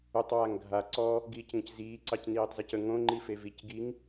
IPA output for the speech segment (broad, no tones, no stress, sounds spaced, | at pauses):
ʏ tˤ w a ŋ ɡʱ a ǀ ɔ | ɡ iː c ŋ ə̃ c z iː ǀ ɑ c n iː tˤ z e c ə ŋ õ ŋ͡ǃ i f e v i c ɡ i ŋ